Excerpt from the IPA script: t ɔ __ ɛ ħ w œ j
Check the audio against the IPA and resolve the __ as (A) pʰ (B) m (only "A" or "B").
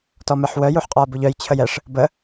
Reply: B